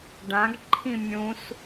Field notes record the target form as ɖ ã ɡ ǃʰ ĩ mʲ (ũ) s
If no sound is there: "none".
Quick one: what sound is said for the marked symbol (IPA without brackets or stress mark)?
ũ